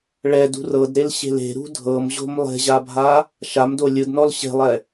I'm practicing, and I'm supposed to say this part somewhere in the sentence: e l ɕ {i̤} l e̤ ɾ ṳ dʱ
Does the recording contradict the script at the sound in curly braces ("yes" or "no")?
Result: yes